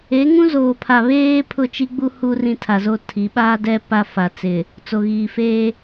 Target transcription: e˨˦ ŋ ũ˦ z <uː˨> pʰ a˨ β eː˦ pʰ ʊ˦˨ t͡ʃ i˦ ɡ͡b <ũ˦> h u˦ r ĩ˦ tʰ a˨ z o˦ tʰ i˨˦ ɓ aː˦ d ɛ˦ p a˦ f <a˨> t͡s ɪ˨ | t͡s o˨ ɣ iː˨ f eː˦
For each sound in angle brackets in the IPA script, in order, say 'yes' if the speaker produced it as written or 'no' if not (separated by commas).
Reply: no, no, yes